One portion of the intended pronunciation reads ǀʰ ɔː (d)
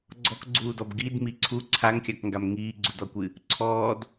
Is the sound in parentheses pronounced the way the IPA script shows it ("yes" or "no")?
yes